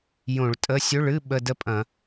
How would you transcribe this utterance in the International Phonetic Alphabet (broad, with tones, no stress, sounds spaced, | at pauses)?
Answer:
j õ˧˩˧ ɭ tʼ ə˧˥˧ sʲ ɵ˧˥˧ ɭ ɨ˧˥˧ ɓ ə˧˥˧ d ə˥ pʼ ɐ̃˧˩˧